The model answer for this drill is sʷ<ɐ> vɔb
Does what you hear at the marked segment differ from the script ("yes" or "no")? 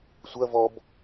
no